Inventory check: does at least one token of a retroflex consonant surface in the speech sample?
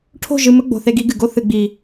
yes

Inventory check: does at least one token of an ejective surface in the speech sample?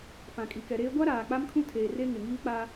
yes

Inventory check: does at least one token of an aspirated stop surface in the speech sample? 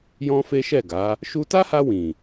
no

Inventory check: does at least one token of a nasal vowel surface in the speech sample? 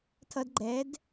no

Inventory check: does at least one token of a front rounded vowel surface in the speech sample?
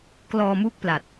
no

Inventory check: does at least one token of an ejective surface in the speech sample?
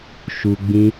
no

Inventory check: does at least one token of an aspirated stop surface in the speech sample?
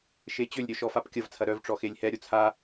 yes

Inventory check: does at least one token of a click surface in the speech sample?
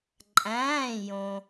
yes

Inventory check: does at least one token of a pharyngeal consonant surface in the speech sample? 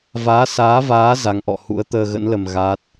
no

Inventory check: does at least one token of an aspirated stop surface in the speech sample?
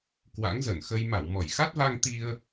no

